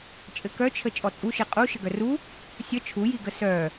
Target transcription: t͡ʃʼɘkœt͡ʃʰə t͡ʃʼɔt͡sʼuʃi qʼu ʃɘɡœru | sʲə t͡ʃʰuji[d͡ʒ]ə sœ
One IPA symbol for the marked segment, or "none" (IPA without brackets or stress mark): ɡ